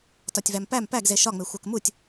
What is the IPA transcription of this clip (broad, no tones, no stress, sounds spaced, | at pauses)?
t ɒ tʲ v æ m p æ m p æ ɡ z e ʃ ɒ ŋ͡m e xʷ æ k m u tʲ